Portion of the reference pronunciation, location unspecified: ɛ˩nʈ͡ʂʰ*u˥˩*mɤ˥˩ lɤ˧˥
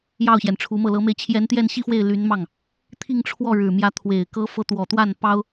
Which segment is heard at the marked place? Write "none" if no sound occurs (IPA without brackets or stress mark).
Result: u˧˥